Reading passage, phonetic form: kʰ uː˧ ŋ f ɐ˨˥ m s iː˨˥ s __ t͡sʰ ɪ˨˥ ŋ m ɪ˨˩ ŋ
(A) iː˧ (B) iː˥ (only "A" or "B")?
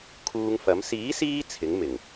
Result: A